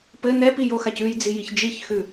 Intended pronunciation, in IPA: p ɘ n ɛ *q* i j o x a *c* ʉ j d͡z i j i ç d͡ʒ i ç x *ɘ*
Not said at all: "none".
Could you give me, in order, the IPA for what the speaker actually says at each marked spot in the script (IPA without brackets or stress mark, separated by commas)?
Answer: p, c, ʉ